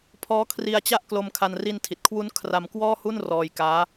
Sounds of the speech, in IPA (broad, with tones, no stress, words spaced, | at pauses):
pʰɔː˦˥kʰri˧a̯t͡ɕa˥˩ʔ klo˧mkʰa˧n ri˧n tʰi˨˩t̚kʰwu˦˥n kʰra˧mkwɔː˥˩hu˥˩n rɔː˧jkaː˦˥